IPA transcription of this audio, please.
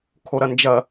kʰoɾɐnd͡ʒɐ

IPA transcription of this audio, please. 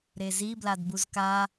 ɾezi bladbuzka

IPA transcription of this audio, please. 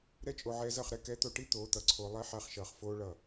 ɾɛ˦t͡ʃʼo˧ ʕɛː˧zʌ˦˨χɾɛ˦ kɛ˨˦t̪o˨ʈi˦ t̪oː˨˦t̪ʌ˨ǀʰoː˧ lˠɛ˦ħa˧χʃʌː˨χ foː˦ɭʌ˦˨

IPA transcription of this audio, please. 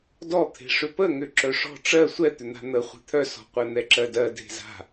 dɔt̪ʰe̤ʂʏ pəŋʏ ǁœʂɔ̤ ʈ͡ʂɜ sʷɛt̪ʏn̪a̤ n̪ə χʷe̤t̪ʰœsɔ̤ qʷɛn̪ɛǁɜdɜ dʱe̤za̤

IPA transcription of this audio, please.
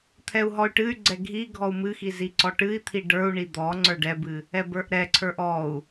t̪ʰɛu̯ɦɔy̯ʈɨy̯ɡ͡ǀɛ ɡʱi ɡʱɔu̯mɨxi ziǀɔʈɨi̯t̪ʰi ɖə˞u̯ɳi d̪ɔ ŋ͡ǀə˞ɖɛbɨ | ɛbə˞ʔɾɛǀʰə˞ʔ ɔu̯

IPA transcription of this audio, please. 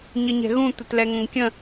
ɲəɲɛ̤ɣũ t̪ətlɛŋə̃ŋkʲə̃

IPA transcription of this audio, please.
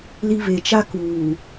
li˦ βe˨t͡ʃa˦ kuː˨

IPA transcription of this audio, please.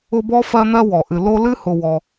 ʊ˦bɔ˥ fɜ˥n̪ɜ˥ wɔ˩ʔɨ˨ lo˦lɨ˥hʊ˨ wɔ˨

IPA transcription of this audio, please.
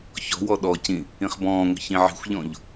çɔ̤wɔ ɗɔcĩ | ĩχbɔ̃ːŋʷə̤ çĩʕi̤xʷʎɔ̃ʎ

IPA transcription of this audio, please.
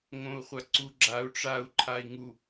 ŋõu̯χʷaǀuɡ͡ǁau̯ ʈ͡ʂau̯ ǃʰai̯ŋu

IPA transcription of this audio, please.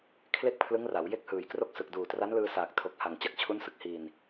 kʰle˥˩k̚pʰlɯ˦˥ŋra˩˦w je˥˩k̚hɯː˩˦jkro˥˩k̚sɯ˨˩k̚ duː˨˩tra˦˥nlɯː˧saː˨˩k̚ tʰo˨˩k̚ha˨˩ŋ t͡ɕa˨˩k̚t͡ɕʰu˦˥nsɯ˨˩k̚ hiː˨˩n

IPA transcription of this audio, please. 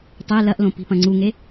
tˤe lɐʔlõ pi̤pɐ̃ŋ͡ǀuŋe

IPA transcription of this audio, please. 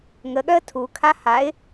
ŋəɠœə̯ tʰukʰa haɪ̯

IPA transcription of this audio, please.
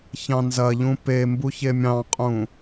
çɑ̃nzɐʎũ pe mbuçemʲɑ̃qʼũ

